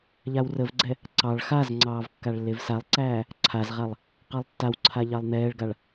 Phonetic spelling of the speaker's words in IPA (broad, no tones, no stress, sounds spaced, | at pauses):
ʎ a w r ə v ɡ͡ǀ ɛ | ǀ ɑ ɭ x a z ŋ͡ǀ ɑː v kː a ɭ lː e v s a lˠ ǀ æː | ǀʰ a z ʁ a lˠ | q ɑ lˠ tː a w ǀʰ a ʎ ɑ lˠ n̪ ɛː ɭ ɡ a ɭ